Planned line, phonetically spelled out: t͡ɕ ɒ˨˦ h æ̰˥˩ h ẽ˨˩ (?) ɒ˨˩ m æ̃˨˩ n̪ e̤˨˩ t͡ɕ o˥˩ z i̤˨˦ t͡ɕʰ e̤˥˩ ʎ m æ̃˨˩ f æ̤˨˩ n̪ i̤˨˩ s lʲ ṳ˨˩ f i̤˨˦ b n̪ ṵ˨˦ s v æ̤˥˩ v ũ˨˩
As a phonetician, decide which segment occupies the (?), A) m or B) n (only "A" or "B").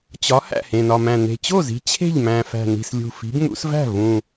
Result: B